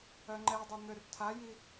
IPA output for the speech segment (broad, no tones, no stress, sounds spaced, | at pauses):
œ ŋ͡ǃ ɛ dˤ o n̪ ø r tʰ a j i